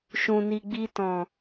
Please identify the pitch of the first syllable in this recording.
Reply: low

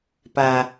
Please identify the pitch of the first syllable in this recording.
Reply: low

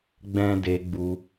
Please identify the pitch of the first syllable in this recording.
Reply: high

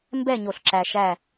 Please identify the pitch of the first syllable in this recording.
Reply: falling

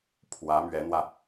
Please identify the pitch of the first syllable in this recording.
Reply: rising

